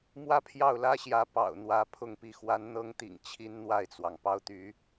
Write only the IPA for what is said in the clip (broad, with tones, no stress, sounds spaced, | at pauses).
m w ä˥˧ pʰ j ɑ˥˩ ʊ̯ l ä˥ ɕ j ä˧˥ p ɑ̰˨˩ ʊ̯ n̪ w ä˧˥ pʰ ʊ˥˧ ŋ p i˥˩ x w a˧˥ n n̪ ɤ˧˥ ŋ t̪ ḭ˨˩ ŋ t͡ɕʰ i˥ n n̪ w a˥˩ ɪ̯ t͡s w ɑ˩ ŋ p ɑ˥˩ ʊ̯ t̪ y˧˥